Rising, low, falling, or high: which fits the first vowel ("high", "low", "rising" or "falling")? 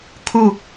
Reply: falling